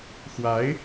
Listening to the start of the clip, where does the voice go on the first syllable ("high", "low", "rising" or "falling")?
rising